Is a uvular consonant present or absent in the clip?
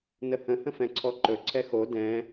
absent